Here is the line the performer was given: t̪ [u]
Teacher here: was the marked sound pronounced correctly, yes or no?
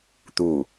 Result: yes